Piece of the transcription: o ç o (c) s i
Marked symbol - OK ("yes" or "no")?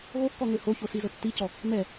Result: no